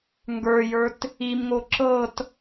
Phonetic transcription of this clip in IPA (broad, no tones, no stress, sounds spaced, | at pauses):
ŋ ɡ ə˞ j ə˞ t | i m ŋ o ǁ ɤ t